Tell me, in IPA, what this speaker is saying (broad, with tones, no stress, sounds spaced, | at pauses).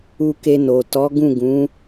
u˧ k e˧ n o˨ t ɔ˨˦ ɡ ũ˦˨ ɡ ũ˨˦